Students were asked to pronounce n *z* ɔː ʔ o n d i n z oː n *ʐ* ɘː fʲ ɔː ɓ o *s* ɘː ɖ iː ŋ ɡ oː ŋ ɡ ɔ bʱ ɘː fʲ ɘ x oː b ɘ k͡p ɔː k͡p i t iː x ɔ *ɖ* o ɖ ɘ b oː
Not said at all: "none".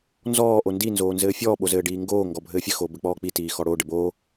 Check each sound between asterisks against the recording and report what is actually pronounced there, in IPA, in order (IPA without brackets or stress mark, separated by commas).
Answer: z, z, z, ɽ